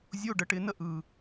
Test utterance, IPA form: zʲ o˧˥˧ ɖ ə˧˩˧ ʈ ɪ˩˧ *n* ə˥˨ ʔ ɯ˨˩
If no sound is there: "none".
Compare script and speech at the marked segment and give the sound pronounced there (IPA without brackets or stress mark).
n